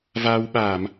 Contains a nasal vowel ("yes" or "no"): no